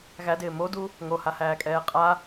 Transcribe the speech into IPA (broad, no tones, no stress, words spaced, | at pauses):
ɣædɪː modu | ŋohahæːkʼɛː qʼa